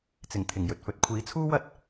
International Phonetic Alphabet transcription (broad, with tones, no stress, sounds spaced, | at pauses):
t͡s ɪ˨˩ ŋ t̪ʰ ɪ˨˩ ŋ j ɵ˨ t̚ f ɵ˨˥ t̚ kʷʰ iː˨˥ t͡sʰ uː˥ w ɐ˥ t̚